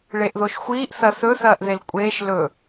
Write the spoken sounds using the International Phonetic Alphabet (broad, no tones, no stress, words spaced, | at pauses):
ɭeʔðoʃxʷiːʔ θɐθɵ θɐːʔðelkʷʼeːʃ lɵ